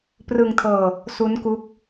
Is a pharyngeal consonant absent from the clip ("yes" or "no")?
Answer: yes